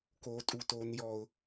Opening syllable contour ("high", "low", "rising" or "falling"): high